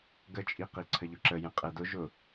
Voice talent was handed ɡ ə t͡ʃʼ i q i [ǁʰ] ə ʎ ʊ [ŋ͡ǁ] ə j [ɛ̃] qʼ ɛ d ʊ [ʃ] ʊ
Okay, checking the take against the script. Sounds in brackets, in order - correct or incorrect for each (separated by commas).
incorrect, incorrect, correct, incorrect